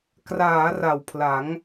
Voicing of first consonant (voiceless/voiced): voiceless